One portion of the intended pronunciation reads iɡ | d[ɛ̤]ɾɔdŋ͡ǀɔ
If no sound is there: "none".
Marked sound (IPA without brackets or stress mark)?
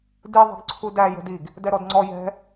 ɛ